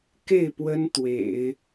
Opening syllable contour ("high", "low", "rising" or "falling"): falling